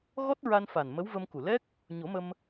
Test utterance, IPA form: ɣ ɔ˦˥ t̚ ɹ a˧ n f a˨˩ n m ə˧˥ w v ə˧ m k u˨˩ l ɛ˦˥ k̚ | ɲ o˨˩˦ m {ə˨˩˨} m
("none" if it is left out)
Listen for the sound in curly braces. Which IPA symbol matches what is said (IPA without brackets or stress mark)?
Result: ə˧